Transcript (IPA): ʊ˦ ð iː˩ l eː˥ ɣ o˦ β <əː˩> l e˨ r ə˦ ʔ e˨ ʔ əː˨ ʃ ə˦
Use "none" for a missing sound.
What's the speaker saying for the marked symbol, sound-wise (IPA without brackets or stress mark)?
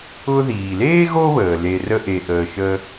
əː˩